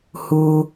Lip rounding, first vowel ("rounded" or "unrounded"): rounded